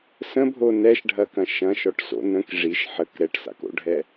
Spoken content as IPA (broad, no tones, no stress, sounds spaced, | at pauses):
s ə̃ bʱ o n ɛ ʃ ɖʱ ɐ k ɐ̃ ʃ ɐ̃ ʃ ɔ ʈ s o̰ n ə̃ k ʐ i ʃ ħ ə k ɾ ɛ ʈ s a̰ k o̰ ɖʱ ɛ